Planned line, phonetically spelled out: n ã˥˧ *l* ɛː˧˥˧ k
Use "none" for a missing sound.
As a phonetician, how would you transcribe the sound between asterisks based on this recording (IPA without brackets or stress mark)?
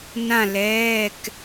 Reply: l